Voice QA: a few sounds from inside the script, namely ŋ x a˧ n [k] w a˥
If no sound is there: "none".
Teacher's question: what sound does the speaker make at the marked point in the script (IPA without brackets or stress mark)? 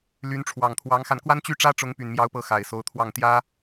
k